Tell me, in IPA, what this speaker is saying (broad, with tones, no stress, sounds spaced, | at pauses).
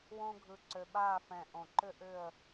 w õ˥ ɡʱ ɯ˧ ǀ ø˧ ɓ aː˥˧ f ɛ̃˧˩ ʔ õ˧˩ ǃ ʏ˥ ʔ ʏ˥˧ ə̯